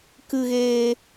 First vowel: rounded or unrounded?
unrounded